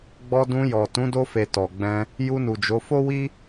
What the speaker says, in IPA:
ɡ͡b ɔ˧ d ũ˧ j ɔ˨ t ũ˨˦ d o˧ f e˨ t ɔ˨ ɡ͡b ɛ̃˧ | j u˧ n u˨ d͡ʒ o˨˦ f o˦ w i˦

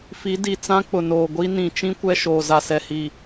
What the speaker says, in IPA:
f i˨˦ d i˨ t͡s ã˦ k͡p ʊ˨ n oː˨ ɡʷ i˦ n ĩ˨ t͡ʃ ĩ˦ kʷ ɛ˦ ʃ oː˨ z a˨ s ɛ˨ h i˨

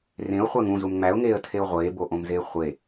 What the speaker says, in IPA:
r ẽ ʊ̯ χʷ æ ŋ ũ z u m ŋ͡m æ ʊ̯ ŋ eː ə̯ tʰ e ʊ̯ ʁʷ eː b o ʔ õ m z eː χʷ e

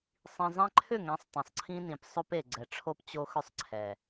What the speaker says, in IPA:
sˤ ĩ˨ zˤ ɛ̃˦ ǃʰ ʏ˦˨ ŋ ɛ̃˨˦ sˤ tˤ ẽ˨ sˤ ǀʰ ĩ˦ n ĩ˨ p sˤ ɵ˦ p e˨ ɡ͡ǀ ɛ˨ ʈ͡ʂʰ o˦ p t͡ɕ o˦ x ʏ˦ sˤ ǀʰ ɛ˨

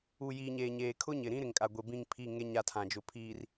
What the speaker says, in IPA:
u˨ j iː˨ ɲ eː˨ ɲ eː˨ kʰ ʊ˦ ɲ ɪ˨ ɾ ĩ˦ ɾ ɪ˨ ŋ kʼ a˨ ɡʷ e˨ b ĩ˦˨ ŋ pʰ i˦˨ ŋ e˦ ɲ a˦˨ tʰ ã˨ d͡ʒ ʊ˨ pʰ iː˨ r

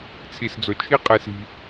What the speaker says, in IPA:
t͡sʰ i˨ s d͡z o˨ t͡ʃʰ i˦ qʼ e˧ s i̤˧

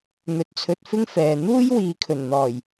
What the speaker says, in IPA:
n̪ ɵ˨˥ t̚ t͡sʰ ɵ˧ t̚ f ɪ˥ ŋ f ɛː˨ n̪ uː˥ j w iː˨ kʰ ɵ˨˩ n n̪ ɔː˨˩ j

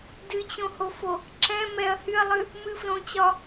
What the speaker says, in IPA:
d ɨ t͡ɕ õ h o f o | ǁ ɛ̃ m ɛ ɐ̯ h y ɐ̯ lˠ ɨ | m ɨ f l õ t͡ɕ ɒ

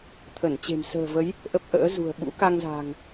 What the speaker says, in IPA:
t̪ʰ ə˧˩ n t͡ɕ e̤˨˩ m s ə̤ː˨˩ v ə˨˦ j | ʔ ə˦˥ p̚ ʔ ə̰ː˧˥ z ṳ˨˩ ə̯ ɓ ṵ˧˥ k a˧ ŋ z a̤˨˩ ŋ

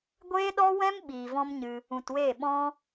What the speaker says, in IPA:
ɡʷ eː˧ ɗ ɔ˧ w ɛ̃˧ m ɓ iː˨ v ɔ̃˦ m ɲ ɨ˧ | ũ˨ t w eː˦˨ ɓ ɔ̃˦

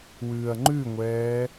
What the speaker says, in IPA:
w ʉː ɐ̯ ŋ͡ǃ ʉ ŋʷ ɛː

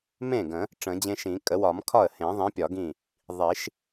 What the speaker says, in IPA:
m ẽ˥˩ ɡ ə̃˨˩˦ | ʈ͡ʂ ə̃˨˩˦ d͡ʑ ẽ˦ ʃ ĩ˨˩˦ kʼ ə˨˩˦ w ɒ˨˩˦ m kʰ ɒ˥˩ ə̯ h ẽ˨˩˦ ðˤ ĩ˨˥ pʲ ɒ˨˩˦ ɡ ĩ˥˩ | ðˤ i˨˩˦ ʃ

